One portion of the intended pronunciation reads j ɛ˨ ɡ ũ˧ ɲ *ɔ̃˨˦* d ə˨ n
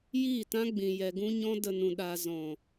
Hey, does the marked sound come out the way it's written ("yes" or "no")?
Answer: no